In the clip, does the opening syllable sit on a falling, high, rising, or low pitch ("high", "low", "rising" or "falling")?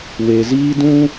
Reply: low